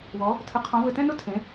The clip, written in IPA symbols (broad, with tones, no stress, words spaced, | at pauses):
wɔ˨˦ | tʰɯ˨˦qʰɔ̃˨˦ vɘ˦˨tɛ̃˥nʊ˥ tʰẽ˨˦